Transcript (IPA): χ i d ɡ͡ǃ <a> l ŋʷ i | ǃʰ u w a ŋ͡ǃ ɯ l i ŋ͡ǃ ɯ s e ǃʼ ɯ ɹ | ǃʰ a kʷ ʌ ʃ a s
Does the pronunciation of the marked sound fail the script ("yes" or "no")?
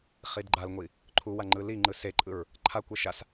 no